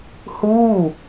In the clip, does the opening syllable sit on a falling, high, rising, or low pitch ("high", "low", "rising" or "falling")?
falling